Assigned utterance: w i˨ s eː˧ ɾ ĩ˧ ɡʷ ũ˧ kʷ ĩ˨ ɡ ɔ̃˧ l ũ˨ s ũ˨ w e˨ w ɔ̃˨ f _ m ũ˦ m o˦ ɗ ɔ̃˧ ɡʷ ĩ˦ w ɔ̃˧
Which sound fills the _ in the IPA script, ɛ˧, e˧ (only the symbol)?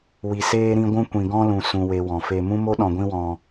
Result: e˧